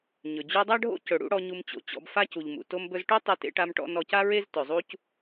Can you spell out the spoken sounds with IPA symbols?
ɲɵ˩d͡ʑu˧dˤa˥ɖʱo̰˥ cɵ˩ɽṵ˥ɽɔ˧ ɲu˧mt͡ɕo̰˩t͡ɕɔ̰˧b fa˥cu˩ʎmṵ˩ to˧mbɵ˧zʈo˥ tˤe˥tḛ˥ʈa˥mʈɔ̰˥ nɔ˧ca˥ɹe˥z tɵ˩zˤu˥c

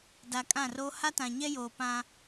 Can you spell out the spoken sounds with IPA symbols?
da˨kʼã˦˨ro˦ ha˦tã˨ɲɛ˦joː˨ pã˦

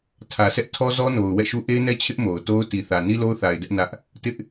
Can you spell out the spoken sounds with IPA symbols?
tʰä˨sʰɛ˦ʔtʰɔ˦ zɔ˦no˨ʊ̯ wɛ̰˦˨ʃu˦ ʔe˦ɪ̯nɛ˦ t͡ɕʰɪ˦ʔ mo˨ʊ̯ to˦ʊ̯ti˨θä˨ ni˦lo˦ʊ̯θa˨ɪ̯ dɛ˦ʔ nä˦ʔ | tɪ˦ʔ

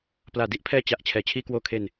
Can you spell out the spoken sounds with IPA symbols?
plaː˨˩di˥˩ʔpʰɛː˦˥ t͡ɕa˨˩ʔ t͡ɕʰɛː˩˦t͡ɕʰiː˧kwoː˧kʰe˧n

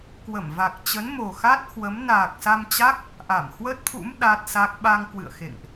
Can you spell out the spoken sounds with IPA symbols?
kwə˧˩mva˨˩k̚t͡ɕə˨˦nmo˨˩ xa˦˥t̚hwə˨˦m naː˨˩k̚sa˧mt͡ɕa˦˥k̚ | ʔa˧˩mhwə˦˥t̚t̪ʰṵ˧˥m ɗa˦˥t̚sa˦˥k̚ ɓa˧ŋkwɨ̰˧˨ə̯xḛ˧˨ŋʔ

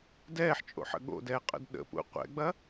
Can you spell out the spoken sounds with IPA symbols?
dɛːħt͡ʃʼo̰ħə̰ ɠo̰dɛːqʼə̰d ɗə̰pṵ qʷɛ̰ɡ͡bɐ

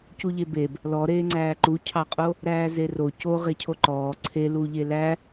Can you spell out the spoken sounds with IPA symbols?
cuʎebeb | lɔɾeːŋ͡ǀæː ǃucʰɑqʼo | ɾæːzero co ʁecʰoǃɔː ǀʰeluʎe læ

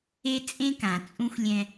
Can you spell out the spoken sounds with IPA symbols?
e˦ t͡sʼẽ˦kã˨t͡sʼũ˦xʷlʲɛ̃˦

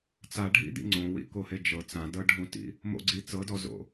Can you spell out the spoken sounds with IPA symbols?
t͡saɖʱḭd̪ḭ ŋ͡ǀõwḭkohe d͡ʒɤ t͡sãdɤɖʱũtḭ | mo̰ɡ͡ǀi t͡sɤdɔzo̰

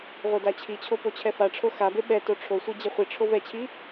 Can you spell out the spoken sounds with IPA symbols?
ʁʷedat͡ɕʰit͡ɕʰo pot͡ɕʰɛfaʈ͡ʂʰo xabe ɓɛto ʈ͡ʂʰosʷi d͡ʑeχʷiʈ͡ʂʰo vɛt͡ɕʰi

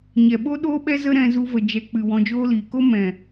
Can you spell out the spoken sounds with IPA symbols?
ɲɛ˨ɓo˦ɗoː˦ɓɛ˦ zə˦ɾɛ̃˧zu˧və˨ d͡ʒɛ˨k͡pɨ˨ wɔ̃˧d͡ʒoː˦liː˨ ko˦ mɛ̃˨

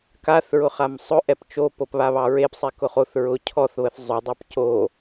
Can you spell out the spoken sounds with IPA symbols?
kaθɹʊ χamsˤʊ ʔɛpt͡ʃo popβaβɑɹep sˤɛkʊχoθ ɹʊ cʰɔθβəθ zˤʊdˤɑp co

